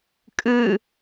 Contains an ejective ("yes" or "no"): yes